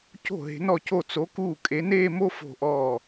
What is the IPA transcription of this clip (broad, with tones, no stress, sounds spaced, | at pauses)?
c o̤˥˩ ɦ e̤˨˥ n ɔ˥˩ c o˥˩ t͡s o˨˥ k uː˥˩ kʼ e˨˥ n eː˥˧ m o˥ f o̤˥˧ ʔ ɔː˥˧